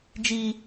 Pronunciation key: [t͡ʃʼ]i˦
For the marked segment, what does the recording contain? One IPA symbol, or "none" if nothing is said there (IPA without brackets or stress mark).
d͡ʒ